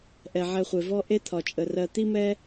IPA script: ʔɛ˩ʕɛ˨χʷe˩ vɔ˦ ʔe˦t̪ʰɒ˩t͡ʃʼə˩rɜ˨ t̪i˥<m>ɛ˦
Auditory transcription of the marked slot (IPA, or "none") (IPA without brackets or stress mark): m